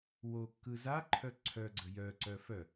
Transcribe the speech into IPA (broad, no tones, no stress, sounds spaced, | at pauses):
w o kː ɯ z a ǃʰ œ ǀʰ œ ɡ͡ǀ ə j œ ǀ œ f œ